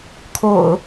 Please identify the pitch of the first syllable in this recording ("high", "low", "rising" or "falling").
low